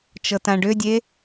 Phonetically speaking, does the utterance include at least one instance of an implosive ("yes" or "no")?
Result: no